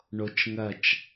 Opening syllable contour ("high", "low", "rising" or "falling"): high